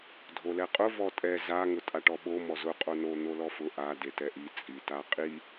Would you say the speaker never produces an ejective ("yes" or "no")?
no